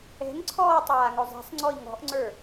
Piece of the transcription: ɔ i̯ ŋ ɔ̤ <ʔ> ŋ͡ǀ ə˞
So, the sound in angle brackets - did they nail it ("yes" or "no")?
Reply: yes